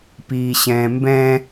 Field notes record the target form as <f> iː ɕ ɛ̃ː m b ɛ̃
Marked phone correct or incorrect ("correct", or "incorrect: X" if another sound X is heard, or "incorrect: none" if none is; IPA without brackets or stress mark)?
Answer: incorrect: p